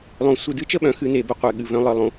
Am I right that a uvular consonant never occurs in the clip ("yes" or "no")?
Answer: no